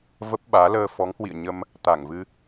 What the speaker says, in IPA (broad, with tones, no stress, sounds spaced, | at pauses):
v ə˦˥ p̚ ɓ aː˨˦ l əː˧ f ɔ˨˦ ŋ h w ḭ˧˨ ə̯ ɲ ə˧ m | t̪ a˧˩ ŋ v ɨ˧